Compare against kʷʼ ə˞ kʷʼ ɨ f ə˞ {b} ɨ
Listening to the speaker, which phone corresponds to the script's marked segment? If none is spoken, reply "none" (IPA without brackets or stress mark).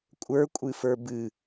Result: b